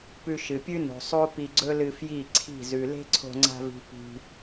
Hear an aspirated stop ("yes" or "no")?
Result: yes